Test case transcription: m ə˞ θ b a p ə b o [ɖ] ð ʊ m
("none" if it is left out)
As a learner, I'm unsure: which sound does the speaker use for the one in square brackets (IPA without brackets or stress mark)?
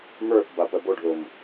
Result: ɖ